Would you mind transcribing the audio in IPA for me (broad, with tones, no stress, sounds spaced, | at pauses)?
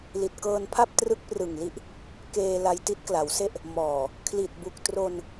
l i˨˩ t̚ k ɤː˧ n pʰ a˥˩ p̚ t r ɯ˦˥ k̚ p r ɯ˨˩ ŋ l i˦˥ ʔ | k eː˧ l a˧ j t i˦˥ t̚ k l a˩˦ w s e˥˩ ʔ | m ɔː˨˩ | kʰ l i˨˩ t̚ b u˨˩ k̚ t r o˧ n